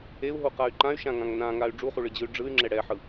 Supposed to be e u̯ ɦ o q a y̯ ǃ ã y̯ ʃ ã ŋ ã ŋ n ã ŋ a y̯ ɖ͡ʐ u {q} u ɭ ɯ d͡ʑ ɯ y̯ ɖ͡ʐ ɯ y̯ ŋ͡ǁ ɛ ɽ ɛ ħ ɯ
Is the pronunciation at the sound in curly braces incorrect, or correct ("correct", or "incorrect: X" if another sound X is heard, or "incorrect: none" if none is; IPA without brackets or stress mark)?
incorrect: χ